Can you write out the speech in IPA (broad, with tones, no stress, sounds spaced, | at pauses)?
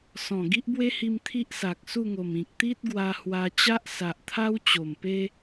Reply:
s ɔ̃˨˩ ɡ i˦ ʔ b w e˦ h i˧ m t̪ʰ i˦ ʔ s a˨ k̚ s u˥˧ ŋ o˨˩ m ĩ˨ k̚ t̪ i˦ t̚ ɡ w a˧ h w a˧ t͡ɕ a˦ ʔ s a˨ ʔ t̪ʰ a˦ w t͡ɕ o˨˩ m p e˦